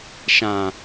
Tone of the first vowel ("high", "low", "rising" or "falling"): low